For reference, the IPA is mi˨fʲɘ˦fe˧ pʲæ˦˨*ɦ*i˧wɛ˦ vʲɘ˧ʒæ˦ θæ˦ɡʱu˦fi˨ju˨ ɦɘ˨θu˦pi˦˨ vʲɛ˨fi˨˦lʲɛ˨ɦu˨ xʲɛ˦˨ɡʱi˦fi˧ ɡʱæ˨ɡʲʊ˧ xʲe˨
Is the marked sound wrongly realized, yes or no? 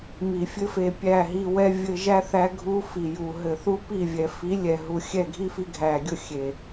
no